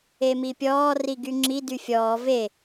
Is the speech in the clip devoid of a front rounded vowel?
no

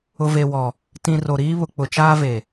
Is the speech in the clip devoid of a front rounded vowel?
yes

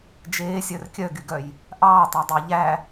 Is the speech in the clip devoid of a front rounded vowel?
no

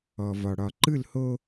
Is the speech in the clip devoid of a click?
no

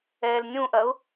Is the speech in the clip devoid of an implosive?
yes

